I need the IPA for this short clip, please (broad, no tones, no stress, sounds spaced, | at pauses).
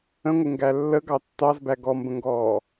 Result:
ə̃ ŋʷ ɪ ŋ ɡ æ lː ə ɡ ɑ tː ɑ z b æ ɡ ɔ m b ə̃ ŋ ɡ ɔː